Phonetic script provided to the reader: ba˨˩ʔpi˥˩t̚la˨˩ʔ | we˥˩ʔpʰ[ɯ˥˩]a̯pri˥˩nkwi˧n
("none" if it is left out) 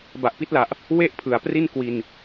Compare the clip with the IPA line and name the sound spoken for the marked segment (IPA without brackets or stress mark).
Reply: ɯ˩˦